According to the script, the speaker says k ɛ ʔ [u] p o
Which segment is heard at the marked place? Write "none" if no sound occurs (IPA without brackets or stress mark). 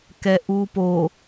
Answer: u